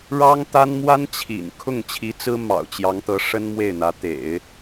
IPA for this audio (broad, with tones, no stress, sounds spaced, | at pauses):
ɻ ɑ˥ ŋ t̪ a˥ n m w a˥ n t͡ɕʰ ḭ˨˩ n kʰ ʊ˥˩ ŋ t͡ɕʰ i˧˥ t͡s ɹ̩˥ m ɑ̰˨˩ ʊ̯ t͡ɕ j ɑ˧˥ ŋ t̪ ɤ˧˥ ʂ ə˥ n m w e˥˩ ɪ̯ n̪ ä˧˥ t̪ ḛ˨˩˦ ɪ̯